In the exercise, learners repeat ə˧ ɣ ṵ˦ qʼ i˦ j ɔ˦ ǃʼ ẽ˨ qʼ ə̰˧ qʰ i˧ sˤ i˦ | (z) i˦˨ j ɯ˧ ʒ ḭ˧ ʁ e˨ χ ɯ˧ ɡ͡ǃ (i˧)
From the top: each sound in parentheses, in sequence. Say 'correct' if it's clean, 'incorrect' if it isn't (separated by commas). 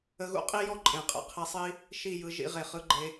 incorrect, incorrect